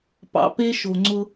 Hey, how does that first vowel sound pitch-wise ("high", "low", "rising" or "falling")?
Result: low